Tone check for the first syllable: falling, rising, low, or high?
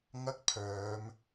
high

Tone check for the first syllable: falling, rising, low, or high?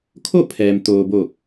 falling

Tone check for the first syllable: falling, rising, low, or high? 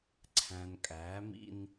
low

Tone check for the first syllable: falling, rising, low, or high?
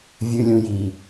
low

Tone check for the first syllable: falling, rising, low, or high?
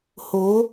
rising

